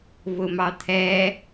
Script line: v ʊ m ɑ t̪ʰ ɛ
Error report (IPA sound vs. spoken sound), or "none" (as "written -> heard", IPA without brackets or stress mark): none